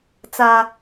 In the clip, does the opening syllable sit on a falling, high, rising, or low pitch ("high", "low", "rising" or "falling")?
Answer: high